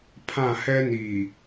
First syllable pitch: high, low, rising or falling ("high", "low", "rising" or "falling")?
falling